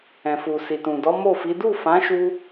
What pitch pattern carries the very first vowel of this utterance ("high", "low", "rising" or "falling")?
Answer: low